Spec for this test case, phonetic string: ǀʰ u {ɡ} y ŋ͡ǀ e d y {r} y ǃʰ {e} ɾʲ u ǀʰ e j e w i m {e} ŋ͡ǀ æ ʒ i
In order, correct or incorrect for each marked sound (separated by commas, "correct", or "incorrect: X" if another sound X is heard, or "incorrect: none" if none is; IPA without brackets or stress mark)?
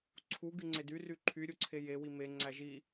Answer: correct, correct, incorrect: y, correct